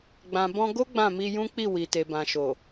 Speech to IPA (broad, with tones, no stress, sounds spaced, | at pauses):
ɡ͡b ã˨ b ɔ̃˧ ɡ o˦ ɡ͡b ã˦˨ m i˧ j ũ˦ k͡p i˦˨ w i˨ t e˨ b ã˨ ʃ o˨